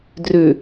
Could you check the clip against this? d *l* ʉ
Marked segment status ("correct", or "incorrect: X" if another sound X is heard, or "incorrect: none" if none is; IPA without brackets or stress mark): incorrect: r